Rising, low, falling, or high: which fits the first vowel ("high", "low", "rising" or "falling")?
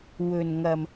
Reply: low